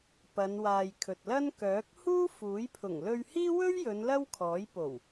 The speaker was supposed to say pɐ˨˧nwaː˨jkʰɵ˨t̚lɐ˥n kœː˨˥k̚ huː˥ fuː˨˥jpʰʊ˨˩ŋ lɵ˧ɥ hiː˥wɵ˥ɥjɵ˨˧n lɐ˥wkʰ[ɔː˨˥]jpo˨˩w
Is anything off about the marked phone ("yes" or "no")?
no